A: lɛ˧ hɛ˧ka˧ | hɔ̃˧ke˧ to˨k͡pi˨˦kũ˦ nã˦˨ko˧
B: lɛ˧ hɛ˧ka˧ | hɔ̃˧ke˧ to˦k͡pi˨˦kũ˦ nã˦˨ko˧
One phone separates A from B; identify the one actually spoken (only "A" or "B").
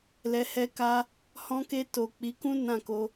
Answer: A